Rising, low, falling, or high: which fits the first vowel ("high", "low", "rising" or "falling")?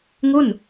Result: falling